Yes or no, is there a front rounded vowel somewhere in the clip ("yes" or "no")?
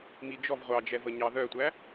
yes